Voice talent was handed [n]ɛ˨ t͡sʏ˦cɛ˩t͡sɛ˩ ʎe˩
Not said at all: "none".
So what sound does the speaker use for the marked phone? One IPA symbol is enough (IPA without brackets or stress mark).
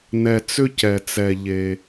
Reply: n